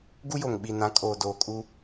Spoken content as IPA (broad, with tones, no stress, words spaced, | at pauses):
ɡu˦jo˨ŋ ɓi˨nã˨˦ kʼoː˨doː˨ kʼu˦